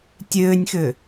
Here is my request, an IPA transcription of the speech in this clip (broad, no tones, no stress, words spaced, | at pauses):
tʲøːnʲxø